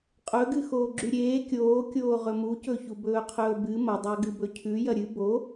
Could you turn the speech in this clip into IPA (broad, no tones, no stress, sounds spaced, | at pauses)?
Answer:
qʼ ɵ ɡ ɨ x oː ɡ͡ǁ ʉ ɾʲ eː kʲ oː kʲ oː ʁ ɵ m u c ɵ ç u b ɵː qʰ ɵː b ɨ m ɐ dˤ a ɡ ɨ b ɵ cʰ ʉ j ɐ ɾʲ ɨ b o